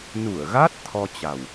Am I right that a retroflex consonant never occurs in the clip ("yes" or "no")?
yes